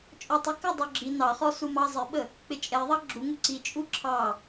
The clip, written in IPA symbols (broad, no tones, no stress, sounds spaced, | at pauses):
t͡ʃʼ ɔ tˤ ɪ k ə dˤ u ɡ͡ǁ i n ɑ χ ɔ s u m ɑ zˤ ɪ ɓ ə | k͡p ɪ t͡ʃʼ ɛ ðˤ ɑ ɡ͡ǁ u ŋ u ǀ i t͡ʃʼ u ǁʰ ɑ